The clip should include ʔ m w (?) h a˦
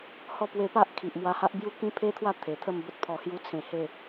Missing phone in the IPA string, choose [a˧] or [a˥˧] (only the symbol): a˧